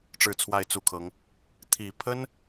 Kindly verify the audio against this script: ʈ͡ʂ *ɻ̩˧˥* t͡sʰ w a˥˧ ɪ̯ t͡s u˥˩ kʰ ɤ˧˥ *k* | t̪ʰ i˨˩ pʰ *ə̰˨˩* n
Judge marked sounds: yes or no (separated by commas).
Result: no, no, no